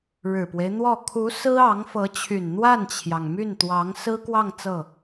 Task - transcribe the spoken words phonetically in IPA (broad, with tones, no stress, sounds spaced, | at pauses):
ɻ ɻ̩˨˩ p w e˦ ɪ̯ n̪ w ɔ˥˩ kʰ u˧˥ s ɹ̩˥ ɑ˧˥ ŋ f ɤ˧˥ t͡ɕʰ y˨˩ n n̪ w a˥˩ n t͡ɕʰ j ɑ˩ ŋ m y˥˩ n t̪ w ɑ˧˥ ŋ s ɹ̩˥ k w ɑ˥˧ ŋ t͡s ɤ˥˩